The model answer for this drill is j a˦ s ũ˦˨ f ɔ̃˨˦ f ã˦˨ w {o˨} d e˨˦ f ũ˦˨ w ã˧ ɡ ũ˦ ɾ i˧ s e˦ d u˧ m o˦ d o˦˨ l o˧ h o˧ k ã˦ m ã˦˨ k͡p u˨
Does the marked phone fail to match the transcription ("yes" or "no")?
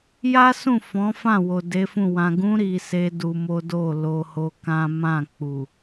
no